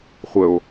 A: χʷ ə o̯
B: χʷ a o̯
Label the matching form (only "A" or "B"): A